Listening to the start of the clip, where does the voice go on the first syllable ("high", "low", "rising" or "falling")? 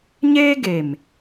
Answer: high